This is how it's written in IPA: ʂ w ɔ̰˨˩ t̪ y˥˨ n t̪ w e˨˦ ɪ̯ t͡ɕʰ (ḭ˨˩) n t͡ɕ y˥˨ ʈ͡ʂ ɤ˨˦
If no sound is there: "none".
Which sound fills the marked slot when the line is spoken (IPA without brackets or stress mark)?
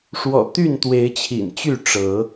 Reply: ḭ˨˩